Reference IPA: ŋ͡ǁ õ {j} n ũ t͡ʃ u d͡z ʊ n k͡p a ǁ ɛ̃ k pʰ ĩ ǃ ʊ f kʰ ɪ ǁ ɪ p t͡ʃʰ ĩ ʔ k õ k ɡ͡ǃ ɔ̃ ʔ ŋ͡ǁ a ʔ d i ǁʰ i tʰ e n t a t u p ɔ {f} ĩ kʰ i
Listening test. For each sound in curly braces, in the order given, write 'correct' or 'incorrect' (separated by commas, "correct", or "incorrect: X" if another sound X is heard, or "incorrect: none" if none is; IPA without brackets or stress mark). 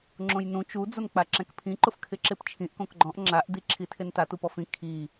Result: correct, correct